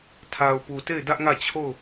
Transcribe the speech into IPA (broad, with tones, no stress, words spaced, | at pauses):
tʰa˨ʊ̯pu˨te˦˨ɪ̯ dä˦ʔŋä˦˨ t͡ɕʰo˦˨ʊ̯